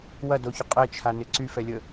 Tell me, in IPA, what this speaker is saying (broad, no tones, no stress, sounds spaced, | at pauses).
w ɐ d o ç ʊ qʼ ɛ t͡ʃʰ a n ɪ ǀ y f ɛ lʲ ə